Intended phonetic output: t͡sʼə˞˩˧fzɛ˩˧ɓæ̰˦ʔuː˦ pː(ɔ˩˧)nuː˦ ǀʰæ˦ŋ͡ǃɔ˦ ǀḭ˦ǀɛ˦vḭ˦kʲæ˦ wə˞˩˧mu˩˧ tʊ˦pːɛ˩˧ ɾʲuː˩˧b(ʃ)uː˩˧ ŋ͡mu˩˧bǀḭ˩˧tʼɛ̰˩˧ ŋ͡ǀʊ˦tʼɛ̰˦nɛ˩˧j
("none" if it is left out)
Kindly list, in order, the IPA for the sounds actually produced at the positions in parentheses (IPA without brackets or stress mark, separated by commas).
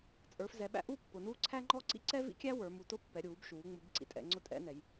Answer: ʊ˩˧, ʃ